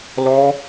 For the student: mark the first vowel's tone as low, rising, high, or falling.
high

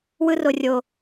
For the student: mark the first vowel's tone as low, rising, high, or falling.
high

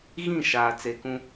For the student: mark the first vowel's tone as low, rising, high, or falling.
falling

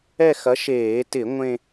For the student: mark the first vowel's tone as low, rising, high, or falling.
falling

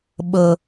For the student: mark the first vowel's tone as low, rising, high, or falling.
low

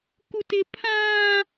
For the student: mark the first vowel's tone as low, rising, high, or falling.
high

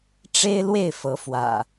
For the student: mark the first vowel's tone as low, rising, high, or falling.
high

